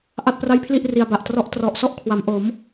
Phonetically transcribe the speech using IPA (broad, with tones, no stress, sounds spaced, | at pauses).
ʔ a˥˩ t̚ p r a˥˩ j pʰ l i˥˩ ʔ r i˧ a̯ b a˨˩ ʔ t r ɔ˦˥ ʔ t r ɔ˨˩ ʔ s ɔ˦˥ ʔ kʰ w a˩˦ m ʔ o˩˦ m